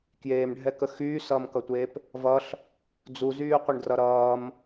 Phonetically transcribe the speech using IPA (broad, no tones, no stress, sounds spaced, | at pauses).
k j eː m ɖʱ ɛ k ə x yː s ʌː m k ʌ tʷ eː p | v ʌ ɬ | d͡z u z yː qʷ ə ɳ d r ʌ ɾ ʌː m